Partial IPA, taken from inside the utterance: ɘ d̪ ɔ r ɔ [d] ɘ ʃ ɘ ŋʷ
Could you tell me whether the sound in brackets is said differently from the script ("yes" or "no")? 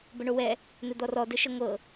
no